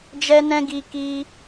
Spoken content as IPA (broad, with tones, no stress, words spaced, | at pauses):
d͡ʒɛ˦nɛ̃˦ ɡi˧ ki˧